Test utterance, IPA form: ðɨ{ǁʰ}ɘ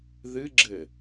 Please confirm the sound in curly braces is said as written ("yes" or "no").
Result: no